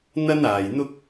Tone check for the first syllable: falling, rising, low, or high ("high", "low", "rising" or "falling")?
high